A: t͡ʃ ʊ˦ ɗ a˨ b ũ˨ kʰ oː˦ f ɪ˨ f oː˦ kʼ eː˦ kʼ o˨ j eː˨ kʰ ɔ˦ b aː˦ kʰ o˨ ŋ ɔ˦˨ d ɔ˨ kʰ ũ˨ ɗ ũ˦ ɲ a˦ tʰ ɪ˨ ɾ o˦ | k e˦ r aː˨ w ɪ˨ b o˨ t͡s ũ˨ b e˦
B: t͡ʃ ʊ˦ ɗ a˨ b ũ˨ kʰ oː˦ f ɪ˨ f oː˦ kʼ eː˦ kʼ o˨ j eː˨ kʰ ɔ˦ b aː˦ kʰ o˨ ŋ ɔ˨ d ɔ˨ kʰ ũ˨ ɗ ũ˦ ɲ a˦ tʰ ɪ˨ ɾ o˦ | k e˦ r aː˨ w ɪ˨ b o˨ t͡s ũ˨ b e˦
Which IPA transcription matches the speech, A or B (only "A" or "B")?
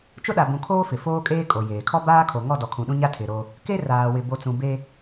A